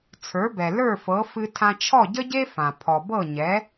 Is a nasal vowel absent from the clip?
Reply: no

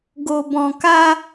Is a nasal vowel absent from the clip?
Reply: no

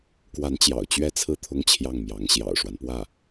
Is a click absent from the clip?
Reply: yes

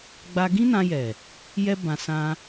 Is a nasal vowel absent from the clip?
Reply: no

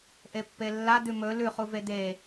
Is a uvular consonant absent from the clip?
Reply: no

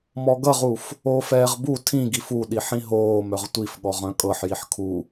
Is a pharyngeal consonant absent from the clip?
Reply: no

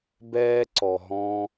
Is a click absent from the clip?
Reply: no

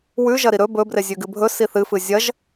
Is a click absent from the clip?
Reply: yes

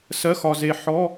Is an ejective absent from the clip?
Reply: yes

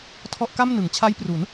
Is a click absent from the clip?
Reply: yes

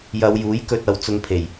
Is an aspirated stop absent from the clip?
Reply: no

